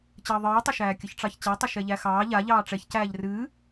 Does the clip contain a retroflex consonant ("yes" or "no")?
yes